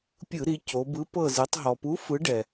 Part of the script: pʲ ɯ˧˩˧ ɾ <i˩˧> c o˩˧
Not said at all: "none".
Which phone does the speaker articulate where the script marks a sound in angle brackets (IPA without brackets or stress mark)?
i˩˧